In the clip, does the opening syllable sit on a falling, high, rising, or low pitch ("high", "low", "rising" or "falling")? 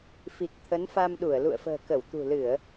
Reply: low